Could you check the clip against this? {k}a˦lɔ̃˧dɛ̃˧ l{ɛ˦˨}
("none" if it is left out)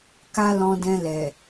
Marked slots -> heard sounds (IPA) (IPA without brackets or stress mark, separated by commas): k, ɛ˨